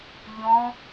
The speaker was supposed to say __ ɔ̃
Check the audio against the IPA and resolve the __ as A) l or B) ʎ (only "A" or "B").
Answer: B